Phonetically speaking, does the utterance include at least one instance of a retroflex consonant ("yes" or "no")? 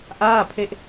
no